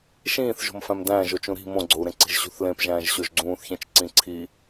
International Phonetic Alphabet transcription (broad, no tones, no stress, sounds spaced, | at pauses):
ʃ ĩː θ ʒ o̤ m f æ̃ m d æ̃ː ʒ o t͡ʃ ũ ɾ i̤ m õ ɡ͡ǀ o u̯ ɾ ẽ ǀ i̤ ʒ ɕ ṳ θ l ẽ p ʒ æ̃ː ʒ ɕ o ʒ ɡ͡ǀ ũː θ ç ẽ t͡ʃ ǀ ĩ ǀʰ i